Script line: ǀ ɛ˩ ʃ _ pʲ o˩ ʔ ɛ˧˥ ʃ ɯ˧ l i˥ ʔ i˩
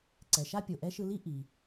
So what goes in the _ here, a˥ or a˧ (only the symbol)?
a˥